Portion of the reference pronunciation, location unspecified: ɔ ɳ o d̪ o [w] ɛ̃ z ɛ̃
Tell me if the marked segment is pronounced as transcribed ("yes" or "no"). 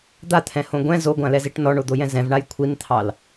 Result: no